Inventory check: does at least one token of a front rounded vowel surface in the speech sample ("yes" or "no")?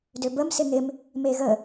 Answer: yes